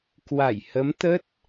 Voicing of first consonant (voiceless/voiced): voiceless